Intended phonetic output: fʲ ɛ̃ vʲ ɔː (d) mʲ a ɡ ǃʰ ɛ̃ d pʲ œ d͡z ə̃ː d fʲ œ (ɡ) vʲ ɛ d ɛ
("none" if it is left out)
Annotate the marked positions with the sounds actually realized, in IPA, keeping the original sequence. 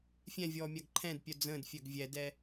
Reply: none, ɡ

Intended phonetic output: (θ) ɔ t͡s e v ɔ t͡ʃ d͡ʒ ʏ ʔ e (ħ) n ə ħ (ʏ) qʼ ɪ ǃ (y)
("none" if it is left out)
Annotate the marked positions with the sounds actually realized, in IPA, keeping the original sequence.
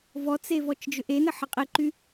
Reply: v, none, ə, y

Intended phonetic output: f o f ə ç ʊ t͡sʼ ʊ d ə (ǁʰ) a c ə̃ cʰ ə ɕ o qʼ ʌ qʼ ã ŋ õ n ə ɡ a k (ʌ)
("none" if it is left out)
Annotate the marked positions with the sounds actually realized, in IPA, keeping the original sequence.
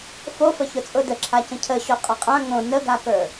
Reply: ǁʰ, ə˞

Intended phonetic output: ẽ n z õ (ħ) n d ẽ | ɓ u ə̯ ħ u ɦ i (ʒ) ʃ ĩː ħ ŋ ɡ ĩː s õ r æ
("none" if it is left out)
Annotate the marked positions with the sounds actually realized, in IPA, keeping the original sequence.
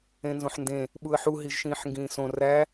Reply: ħ, ʒ

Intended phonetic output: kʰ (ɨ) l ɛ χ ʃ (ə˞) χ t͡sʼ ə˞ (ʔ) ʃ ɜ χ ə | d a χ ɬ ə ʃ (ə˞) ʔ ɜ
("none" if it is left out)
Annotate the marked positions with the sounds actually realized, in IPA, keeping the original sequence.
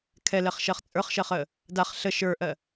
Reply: ɛ, ɜ, χ, ə˞

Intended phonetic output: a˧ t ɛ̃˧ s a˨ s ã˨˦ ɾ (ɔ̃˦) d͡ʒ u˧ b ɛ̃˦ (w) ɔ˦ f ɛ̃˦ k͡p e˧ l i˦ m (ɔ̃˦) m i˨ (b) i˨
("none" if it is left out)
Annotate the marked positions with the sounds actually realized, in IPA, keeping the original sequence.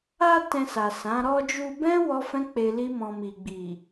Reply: ɔ˦, w, ɔ̃˧, ɡ͡b

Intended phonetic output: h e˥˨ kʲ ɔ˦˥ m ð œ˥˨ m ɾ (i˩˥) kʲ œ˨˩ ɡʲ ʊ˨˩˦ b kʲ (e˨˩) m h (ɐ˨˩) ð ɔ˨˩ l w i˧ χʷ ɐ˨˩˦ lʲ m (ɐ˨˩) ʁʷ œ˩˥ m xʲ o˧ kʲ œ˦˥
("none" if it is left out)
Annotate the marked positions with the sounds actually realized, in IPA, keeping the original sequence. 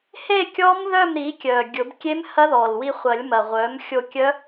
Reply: i˩˥, e˦˥, ɐ˦˥, ɐ˨˩

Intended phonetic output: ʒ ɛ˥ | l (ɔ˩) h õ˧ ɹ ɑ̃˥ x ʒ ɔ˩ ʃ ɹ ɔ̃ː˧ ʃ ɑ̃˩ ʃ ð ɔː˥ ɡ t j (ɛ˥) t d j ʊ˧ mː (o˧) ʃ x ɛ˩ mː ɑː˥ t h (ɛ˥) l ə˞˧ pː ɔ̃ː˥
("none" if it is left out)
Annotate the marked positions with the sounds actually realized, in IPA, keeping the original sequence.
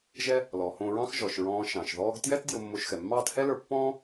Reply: ɔ˩, ɛ˥, o˧, ɛ˥

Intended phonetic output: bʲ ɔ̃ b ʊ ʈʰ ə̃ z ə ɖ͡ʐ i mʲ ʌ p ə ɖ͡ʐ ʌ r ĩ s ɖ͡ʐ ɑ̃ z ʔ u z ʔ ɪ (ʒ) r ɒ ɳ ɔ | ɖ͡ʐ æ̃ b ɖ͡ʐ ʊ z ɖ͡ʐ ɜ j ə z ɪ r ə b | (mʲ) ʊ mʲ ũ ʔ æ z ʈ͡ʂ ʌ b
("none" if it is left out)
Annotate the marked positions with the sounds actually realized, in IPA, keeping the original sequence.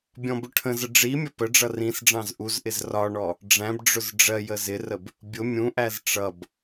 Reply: z, bʲ

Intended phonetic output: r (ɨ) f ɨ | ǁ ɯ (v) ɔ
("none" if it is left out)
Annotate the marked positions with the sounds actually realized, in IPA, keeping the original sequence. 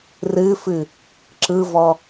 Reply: ɨ, v

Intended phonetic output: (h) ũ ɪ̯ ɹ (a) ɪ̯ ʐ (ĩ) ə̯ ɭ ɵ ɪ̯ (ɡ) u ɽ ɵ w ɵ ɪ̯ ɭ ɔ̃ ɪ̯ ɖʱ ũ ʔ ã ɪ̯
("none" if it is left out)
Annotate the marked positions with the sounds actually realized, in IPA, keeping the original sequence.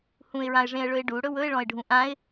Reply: h, ã, ẽ, ɖ

